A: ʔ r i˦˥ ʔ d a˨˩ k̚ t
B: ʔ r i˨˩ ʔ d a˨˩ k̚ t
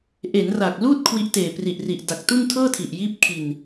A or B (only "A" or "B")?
B